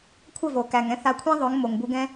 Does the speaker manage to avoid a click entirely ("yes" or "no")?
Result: yes